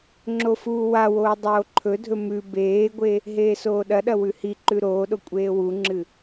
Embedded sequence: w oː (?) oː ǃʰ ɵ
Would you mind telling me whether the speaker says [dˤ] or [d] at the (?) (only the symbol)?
dˤ